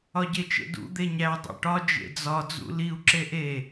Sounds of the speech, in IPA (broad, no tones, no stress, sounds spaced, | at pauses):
ɒ ɟ e t͡ʃ ḛ d ṵ d̪ e ɲ æ dˤ ḛ ʈ ɒ d͡ʒ ḛ d͡z ɒ d͡z ṵ l i u̯ ǁ e ʔ e